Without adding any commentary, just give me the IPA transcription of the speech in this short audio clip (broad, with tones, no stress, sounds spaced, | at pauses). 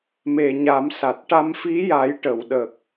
m e˨˩ ɲ a˨˩˦ m s a˨˩ t̚ ʈ a˧ m f i˧˥ j a˨˩˦ j ʈ ə˨˩˨ w ɗ ə˨˩ k̚